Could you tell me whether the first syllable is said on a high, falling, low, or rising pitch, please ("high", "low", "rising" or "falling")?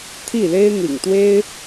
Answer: falling